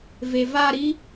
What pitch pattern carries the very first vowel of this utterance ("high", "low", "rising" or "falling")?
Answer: low